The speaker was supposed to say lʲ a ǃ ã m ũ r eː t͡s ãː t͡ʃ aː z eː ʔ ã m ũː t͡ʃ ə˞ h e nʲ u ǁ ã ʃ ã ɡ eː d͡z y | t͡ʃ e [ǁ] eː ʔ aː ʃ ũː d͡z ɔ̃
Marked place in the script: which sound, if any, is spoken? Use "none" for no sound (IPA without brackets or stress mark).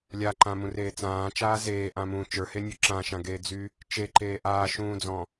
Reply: ǃ